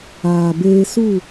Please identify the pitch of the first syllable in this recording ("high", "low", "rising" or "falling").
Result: low